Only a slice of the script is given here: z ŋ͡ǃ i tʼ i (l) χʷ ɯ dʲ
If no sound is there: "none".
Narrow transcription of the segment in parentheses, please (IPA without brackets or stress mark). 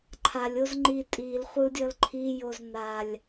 l